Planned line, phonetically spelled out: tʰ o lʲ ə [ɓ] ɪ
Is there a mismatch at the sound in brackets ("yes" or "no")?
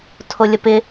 yes